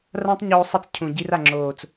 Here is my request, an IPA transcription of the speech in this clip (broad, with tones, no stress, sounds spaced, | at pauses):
r ã˦ tˤ ɲ oː˧ sˤ i˧ t͡s cʰ ũ˨ ɟ i˧ r a˨ ŋ͡ǁ oː˨ t͡s